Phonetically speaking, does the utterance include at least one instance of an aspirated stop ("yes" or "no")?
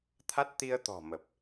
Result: yes